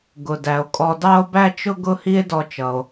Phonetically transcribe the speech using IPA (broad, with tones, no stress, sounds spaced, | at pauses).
ɡ ʊ˩ d æ˩ o̯ kʼ ɔ˧ d ɑ˥ o̯ b æ˥ t͡ʃ ʊ˥ ɡ ʊ˥ h i˥ e̯ d ɔ˧ t͡ʃ ʌ˩ o̯